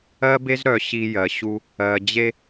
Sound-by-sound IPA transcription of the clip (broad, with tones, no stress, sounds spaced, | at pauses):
ɜ˦ b e˦ z ɾ œ˨ ɕ i˧ j ɜ˨ ɕ u˧ | ɜ˨ d͡ʑ e˦